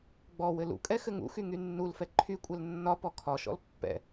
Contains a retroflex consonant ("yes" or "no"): no